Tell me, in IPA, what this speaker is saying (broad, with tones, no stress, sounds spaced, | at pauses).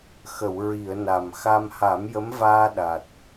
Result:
x ə˨˩˨ w ɹ i˨˩˨ ə̯ n a˨˩ m x a˧ m h a˨˩˦ m j ə˧˥ m v aː˧ ɗ a˨˩ t̚